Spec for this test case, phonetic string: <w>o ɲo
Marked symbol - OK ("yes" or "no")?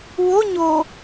yes